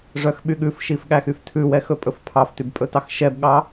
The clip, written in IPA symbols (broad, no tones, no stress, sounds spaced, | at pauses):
ʐ œ x ɓ y ɠ ʉ f ʃ i f ɠ æ x y f tʰ ʉ w ɛ x ɵ pʼ ɵ f pʰ ɑ f t y b pʼ ɵ t ɑ x ʃ ɛ b ɠ ɑ